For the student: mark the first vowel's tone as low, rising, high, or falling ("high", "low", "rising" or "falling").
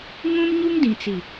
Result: high